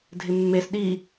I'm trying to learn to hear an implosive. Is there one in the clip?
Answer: yes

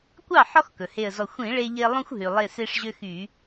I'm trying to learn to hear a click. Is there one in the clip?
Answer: no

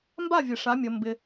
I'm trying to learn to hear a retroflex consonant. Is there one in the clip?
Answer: yes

